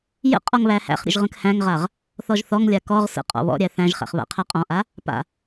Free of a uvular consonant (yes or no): no